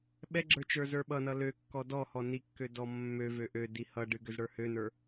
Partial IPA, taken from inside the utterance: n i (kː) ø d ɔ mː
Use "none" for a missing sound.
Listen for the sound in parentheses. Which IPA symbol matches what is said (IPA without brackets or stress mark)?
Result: kː